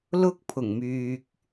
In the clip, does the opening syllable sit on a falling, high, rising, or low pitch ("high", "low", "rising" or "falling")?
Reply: high